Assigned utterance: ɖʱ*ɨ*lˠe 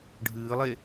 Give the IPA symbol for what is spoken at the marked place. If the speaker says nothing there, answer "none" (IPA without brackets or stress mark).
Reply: ɨː